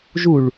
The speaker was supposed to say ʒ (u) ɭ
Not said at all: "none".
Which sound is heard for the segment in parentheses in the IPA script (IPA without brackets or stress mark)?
u